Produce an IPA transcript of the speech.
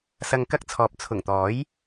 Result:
sɐ˨ŋ kɐ˥k̚t͡sʰɔː˨p̚ t͡sʰʊ˨˩ŋ t̪ɔː˨˥j

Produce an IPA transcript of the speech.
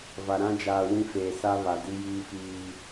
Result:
va˨ ɾã˦d͡ʒaː˨wĩ˦feː˨ sa˦βa˨di˦ jiː˦fiː˦

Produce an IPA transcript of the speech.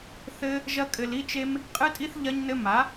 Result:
θɘ˦ | ʒɐ˦kʼɘ˧l i˦t͡ʃe˦m | qʼɨ˦tʼi˦θ ʎɐ˦ɲnɘ˦ ma˨˦

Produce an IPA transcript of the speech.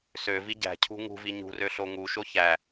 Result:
søvi ɟæ̤cʰṳ ŋṳvi ɲṳrø ɬoŋuʃo çæ

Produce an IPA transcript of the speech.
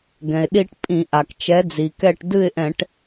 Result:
ɡɛ̃˩ɪ̯ɗi˦ʈpʼĩ˧˩˧ ʔa˩kt͡ʃɛ˨˥d͡zi˩kɛ˥˨ʈ dɨ˥˨ɪ̯ʔɛ̃˧˩˧ʈ

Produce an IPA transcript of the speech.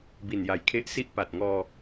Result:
bi˨˩nja˨˩jkʰe˦˥ʔsi˥˩ʔ pa˨˩t̚ŋɔː˧

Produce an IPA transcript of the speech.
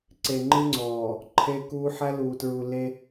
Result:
ǀe˨ŋ͡ǃɨ˦ŋ͡ǀɔː˨ | ǃʰe˦kuː˦ ħæ˦luː˨tɹu˨le˦

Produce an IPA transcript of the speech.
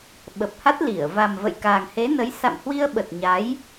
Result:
ɓə˨˩p̚ha˦˥t̚ li˧˩ə̯ va˨˩mvə̰˧˨j kaː˨˩ŋhe˨˦nə˨˦j sa̰˧˨mhwi˧ə̯ɓə˨˩t̚ ɲa˨˦j

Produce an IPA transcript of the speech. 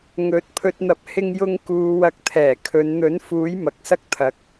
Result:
ŋɵ˨˥t̚ pʰɵ˨t̚n̪ɐ˨˥p̚ hɪ˥ŋjʊ˥ŋ kuː˧ wɐ˧k̚ t̪ʰɛː˨˩kʰɵ˨˧n n̪ɵ˨˥nfuː˨˥j mɐ˨k̚sɐ˥k̚t̪ʰɐ˨˥k̚

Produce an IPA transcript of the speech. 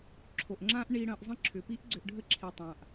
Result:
ǁʰo˨ʔŋ͡ǁã˦ʔ ɳi˧ɽə̃ː˨˦ʔ zˤə̃˦˨ǁʰʏ˨pi˦ʔ ɡ͡ǀʏ˧ʔɖʱə˦ǁʰi˨ tˤã˨ʔ

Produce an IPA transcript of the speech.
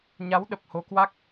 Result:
ɲa˨˦wɗə˨˩p̚ ho˨˦kwa˦˥k̚

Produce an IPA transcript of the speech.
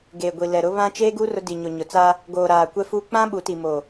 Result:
ɡeː˨ɡʷi˨ lɛ˨ɾʊ˦ βã˦ t͡ʃeː˦ɡu˦ rʊ˦ di˨ɲo˨ ɲʊ˨t͡sa˦ | ɡoː˨ ɾaː˨kʷɛ˦fuː˦ k͡pã˦ ɓu˨˦ti˨moː˨

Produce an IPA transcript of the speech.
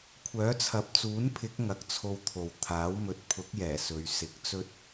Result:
kʷʰœː˨˥t͡sʰɐ˨p̚t͡suː˨˥npʰɪ˨˥k̚ ŋɐ˨k̚t͡sʰo˧wt̪ʰo˨w t̪ʰaː˨˥wmɵ˨˥t̚ pʰʊ˨˥k̚jɛː˨˩ sɵ˨˧ɥ sɪ˨˥k̚t͡sɵ˥t̚

